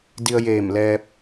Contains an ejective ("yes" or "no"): no